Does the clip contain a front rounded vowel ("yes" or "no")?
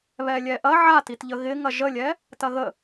no